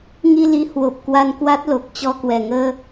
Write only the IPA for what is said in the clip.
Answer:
ŋi˧li˨˦ hwo˨˩p̚ kwa˧nkwa˦˥t̚lo˨˩k̚t͡ɕɔ˧ kwɛ˨˩ŋəː˧

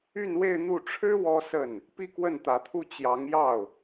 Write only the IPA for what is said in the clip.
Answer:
y˥˧nwe˥˧ɪ̯n̪u˥˩ ʈ͡ʂʰɻ̩˥ wɔ˥sə˥˩n | pi˥˧kwə˥˩nt̪ä˧˥t̪ʰu˥˩ t͡ɕjɑ˧˥ŋjɑ˥˩ʊ̯

